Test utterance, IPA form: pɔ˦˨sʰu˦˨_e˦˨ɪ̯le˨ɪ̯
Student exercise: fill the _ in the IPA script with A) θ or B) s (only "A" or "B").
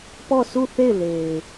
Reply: A